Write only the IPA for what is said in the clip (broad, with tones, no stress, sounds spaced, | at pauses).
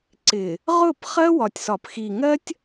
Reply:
ǀ ɪ˨ | ʁ ʊ˦˨ p χ ɜ˦ w ɒ˨ tʲ s ɒ˨ p x i˨ ŋ ɜ˦ tʲ